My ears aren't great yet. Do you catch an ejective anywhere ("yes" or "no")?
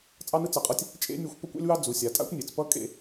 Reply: yes